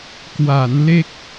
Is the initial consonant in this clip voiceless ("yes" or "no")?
yes